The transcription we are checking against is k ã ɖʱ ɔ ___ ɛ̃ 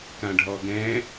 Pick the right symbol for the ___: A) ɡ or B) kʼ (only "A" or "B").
A